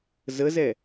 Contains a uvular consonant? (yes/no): no